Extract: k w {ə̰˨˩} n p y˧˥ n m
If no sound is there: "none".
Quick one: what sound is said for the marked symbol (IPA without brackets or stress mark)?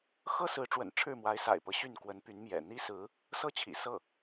ə˧˥